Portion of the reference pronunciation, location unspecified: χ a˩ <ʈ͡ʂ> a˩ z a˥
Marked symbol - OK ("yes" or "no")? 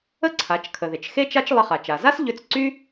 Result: no